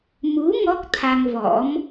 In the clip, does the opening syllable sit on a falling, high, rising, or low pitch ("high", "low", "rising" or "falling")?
rising